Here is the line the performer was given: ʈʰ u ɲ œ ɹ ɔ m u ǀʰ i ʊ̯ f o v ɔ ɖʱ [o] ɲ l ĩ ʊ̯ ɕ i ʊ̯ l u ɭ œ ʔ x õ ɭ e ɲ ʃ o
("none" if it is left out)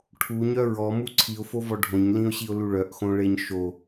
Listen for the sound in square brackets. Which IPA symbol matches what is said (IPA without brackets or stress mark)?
õ